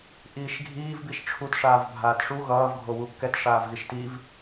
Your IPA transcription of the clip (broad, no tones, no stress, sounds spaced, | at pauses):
ʔ iː ʃ ɡʱ iː v b i ʃ ʈ͡ʂʰ u t ʂ aː v bʱ aː t ʂ u ɣ ʌː v ɡʱ o w u kː ɛ t ʂ aː v ɣ i ʃ t i v